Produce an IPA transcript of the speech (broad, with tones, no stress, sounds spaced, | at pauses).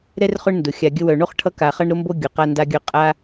ɾ ɛ˥ r χ ʊ˦ ɳ n d ʊ˩ xʲ a˨ ɡʲ ə˦ w œ˨ ɳ o˥ χ ʈʰ ʌ˦ k a˨ χ ʌ˦ ɳ ɾ ʊ˦ m b o˦ ɡʲ ʊ˩ q a˥ n d a˥ ɡʲ œ˥ qʼ a˥